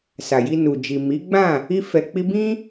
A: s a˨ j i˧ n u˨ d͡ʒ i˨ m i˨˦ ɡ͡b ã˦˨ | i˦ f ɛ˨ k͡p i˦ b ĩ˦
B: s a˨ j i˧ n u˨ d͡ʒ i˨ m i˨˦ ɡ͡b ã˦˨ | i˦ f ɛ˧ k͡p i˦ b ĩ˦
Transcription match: B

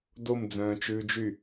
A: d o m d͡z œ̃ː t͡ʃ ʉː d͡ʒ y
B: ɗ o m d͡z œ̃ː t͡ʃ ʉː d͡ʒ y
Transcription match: A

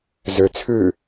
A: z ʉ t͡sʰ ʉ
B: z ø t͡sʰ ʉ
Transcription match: B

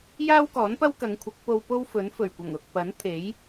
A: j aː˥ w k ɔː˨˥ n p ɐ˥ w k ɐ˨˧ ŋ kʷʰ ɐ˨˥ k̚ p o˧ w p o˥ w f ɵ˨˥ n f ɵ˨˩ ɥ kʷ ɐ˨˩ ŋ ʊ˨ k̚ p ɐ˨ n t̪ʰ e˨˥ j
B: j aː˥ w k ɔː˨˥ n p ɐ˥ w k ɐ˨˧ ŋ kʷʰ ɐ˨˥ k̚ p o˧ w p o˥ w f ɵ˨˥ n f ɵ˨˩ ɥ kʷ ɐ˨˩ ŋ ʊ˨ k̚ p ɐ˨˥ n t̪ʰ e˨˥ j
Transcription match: B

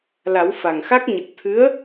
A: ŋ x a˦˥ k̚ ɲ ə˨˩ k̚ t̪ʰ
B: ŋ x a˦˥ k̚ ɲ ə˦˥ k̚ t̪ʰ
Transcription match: A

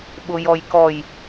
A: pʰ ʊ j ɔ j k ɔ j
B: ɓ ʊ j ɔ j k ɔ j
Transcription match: B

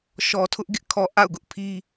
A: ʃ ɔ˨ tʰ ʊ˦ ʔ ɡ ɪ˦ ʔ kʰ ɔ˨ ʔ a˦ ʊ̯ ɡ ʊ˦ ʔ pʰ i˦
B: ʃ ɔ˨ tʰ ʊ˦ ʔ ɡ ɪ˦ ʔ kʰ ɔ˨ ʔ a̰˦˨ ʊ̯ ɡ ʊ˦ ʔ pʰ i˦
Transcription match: B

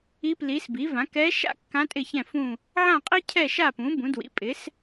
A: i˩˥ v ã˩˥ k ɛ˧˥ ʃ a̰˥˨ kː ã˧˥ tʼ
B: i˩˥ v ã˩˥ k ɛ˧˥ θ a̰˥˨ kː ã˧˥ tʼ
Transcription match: A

